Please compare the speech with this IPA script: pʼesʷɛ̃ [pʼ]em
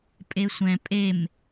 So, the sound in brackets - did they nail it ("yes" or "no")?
yes